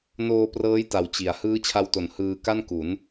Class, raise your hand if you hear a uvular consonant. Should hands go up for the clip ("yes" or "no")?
no